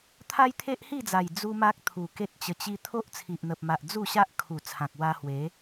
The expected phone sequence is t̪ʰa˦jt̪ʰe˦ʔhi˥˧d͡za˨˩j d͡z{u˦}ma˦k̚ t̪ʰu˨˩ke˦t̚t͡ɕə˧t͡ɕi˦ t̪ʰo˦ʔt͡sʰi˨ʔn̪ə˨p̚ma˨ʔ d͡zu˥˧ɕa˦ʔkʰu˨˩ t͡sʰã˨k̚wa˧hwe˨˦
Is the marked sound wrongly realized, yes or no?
no